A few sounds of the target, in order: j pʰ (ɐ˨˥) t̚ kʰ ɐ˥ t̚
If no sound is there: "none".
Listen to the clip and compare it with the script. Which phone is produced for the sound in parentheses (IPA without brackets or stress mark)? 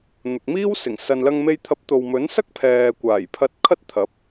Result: ɐ˧